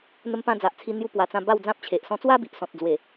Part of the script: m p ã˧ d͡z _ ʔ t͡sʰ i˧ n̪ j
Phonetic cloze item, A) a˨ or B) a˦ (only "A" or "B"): A